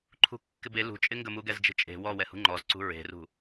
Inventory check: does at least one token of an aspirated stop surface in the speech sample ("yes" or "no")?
yes